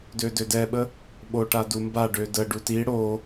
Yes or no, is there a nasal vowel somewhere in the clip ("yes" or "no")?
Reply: no